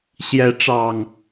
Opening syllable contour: rising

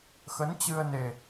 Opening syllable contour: rising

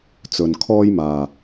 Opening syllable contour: low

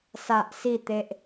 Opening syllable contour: low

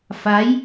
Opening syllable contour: rising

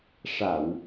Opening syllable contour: low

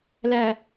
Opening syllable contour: low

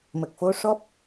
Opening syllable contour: low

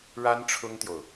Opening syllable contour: high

